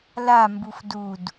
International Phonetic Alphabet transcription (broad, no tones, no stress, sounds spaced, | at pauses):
l a m b u f d u d